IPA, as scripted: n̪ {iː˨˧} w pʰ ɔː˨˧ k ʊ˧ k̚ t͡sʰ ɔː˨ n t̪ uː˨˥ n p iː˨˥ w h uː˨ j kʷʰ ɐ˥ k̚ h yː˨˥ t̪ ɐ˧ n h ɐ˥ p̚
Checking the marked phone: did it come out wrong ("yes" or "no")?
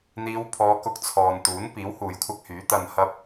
no